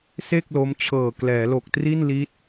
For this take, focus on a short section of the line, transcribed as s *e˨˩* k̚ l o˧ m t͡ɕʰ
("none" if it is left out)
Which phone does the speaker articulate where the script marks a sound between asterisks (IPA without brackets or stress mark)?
e˥˩